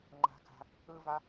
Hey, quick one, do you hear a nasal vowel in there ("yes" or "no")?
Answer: no